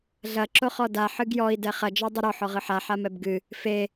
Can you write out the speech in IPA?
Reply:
ɮɐ ǁoχɔda ħɨɡjɔi̯ dɛχɐ d͡ʒɔdˤɨɾɔ ħɔʁɨħa ħamɛbɡɨ | fe

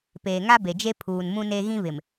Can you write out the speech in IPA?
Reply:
peː˨ŋa˦be˨d͡ʒe˦ pʰuː˨nmũ˦ne˦ ɣĩ˦βɪ˨m

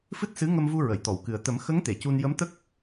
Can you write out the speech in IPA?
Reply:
fɨ˦˥t̚sɨ˧˥ŋə˧mvu˧ ɹə˨˩˨jt̪ɔ˨˩˨wkɨ˨˩ə̯ t̪ə˨˩˦mxə˧˥ŋ t̪e˨˩˨cu˧n jə˧˥mt̪ə˦˥k̚

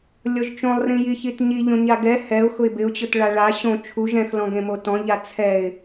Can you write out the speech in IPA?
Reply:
lʲɔʒt͡ʃõlˠrĩji çitɲi ʎõɲaɡɛ hɛʊ̯ xʊɪ̯bɪʊ̯t͡ɕʊt ɭaɭa ɕõ t͡ʃʰuʒ ɛ̃xlɔ̃ ɡẽmotɔ̃ʎa t͡sʰɛɪ̯

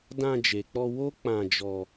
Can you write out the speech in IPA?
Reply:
dã˧d͡ʒe˨k͡pɔ˧ wo˦k͡pã˧ d͡ʒɔ˧

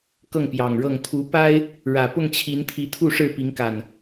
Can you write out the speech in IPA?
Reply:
kɤ˥˨ŋpjɑ˨˩ŋɻɤ˥˨ŋ t̪ʰu˨˦pa˦ɪ̯ | ɻä˨˩pʊ˥˨ŋt͡ɕʰi˨˦nt̪ʰi˨˦ t̪ʰu˥˨ʂɻ̩˥˨pi˨˦ŋka˨˩n

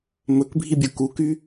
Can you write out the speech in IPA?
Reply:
mɵkbʱibʲu kuky

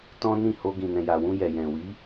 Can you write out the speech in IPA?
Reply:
tɔ̃˦nĩ˦˨ho˧ ɡĩ˨nɛ̃˨ja˨wũ˧ jɛ˨jɛ̃˨ wi˨˦

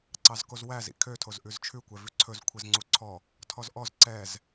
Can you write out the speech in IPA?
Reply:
ǀɑzkozwæz ḭkʰø tʰozʔʉzt͡ʃʰʉ kʷɛvʉǀʰɵz kʷʰezŋ͡ǀuǀʰɔ | tʰɔzʔɔz ǀɛz

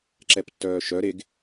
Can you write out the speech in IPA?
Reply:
ǁɛptːœːʃœ ɾeɡ

